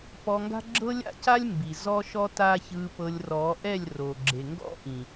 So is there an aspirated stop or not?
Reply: no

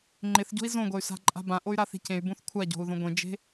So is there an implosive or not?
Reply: no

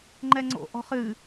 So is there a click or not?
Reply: yes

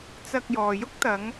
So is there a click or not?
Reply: no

